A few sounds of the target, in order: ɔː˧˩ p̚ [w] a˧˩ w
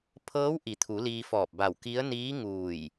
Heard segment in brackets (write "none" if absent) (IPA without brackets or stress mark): b